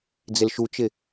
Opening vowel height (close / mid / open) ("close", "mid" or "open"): close